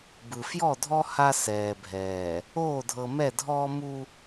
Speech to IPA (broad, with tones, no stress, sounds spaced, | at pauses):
b ɯ˨ f j ɔ˦˨ dʱ ɔ˦ h a˦ s ɛː˨ bʱ ɛː˨ | oː˦˨ dʱ ɤ˨ m ɛ˦˨ dʱ ɔː˦ m u˦